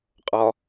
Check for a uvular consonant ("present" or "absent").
present